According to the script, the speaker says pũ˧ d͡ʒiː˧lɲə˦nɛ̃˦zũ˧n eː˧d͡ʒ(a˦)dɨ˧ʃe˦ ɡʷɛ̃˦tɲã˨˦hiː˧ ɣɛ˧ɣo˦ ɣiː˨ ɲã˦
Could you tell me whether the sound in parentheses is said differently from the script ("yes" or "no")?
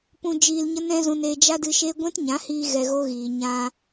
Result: no